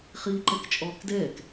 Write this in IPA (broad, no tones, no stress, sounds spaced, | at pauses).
χ iː ǃ ɛ k t͡ʃʼ ɔː k d ɛː k